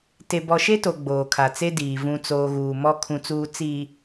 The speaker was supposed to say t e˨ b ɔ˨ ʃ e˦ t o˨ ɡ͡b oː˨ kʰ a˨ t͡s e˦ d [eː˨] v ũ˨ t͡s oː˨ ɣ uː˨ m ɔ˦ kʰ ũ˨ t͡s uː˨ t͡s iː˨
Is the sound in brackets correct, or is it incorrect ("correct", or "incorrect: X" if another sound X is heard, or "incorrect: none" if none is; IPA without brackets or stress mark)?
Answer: incorrect: iː˨